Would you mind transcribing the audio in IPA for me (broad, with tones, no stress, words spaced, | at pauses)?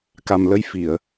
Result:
ka˨˩mlə˧jfi˨˩˨ə̯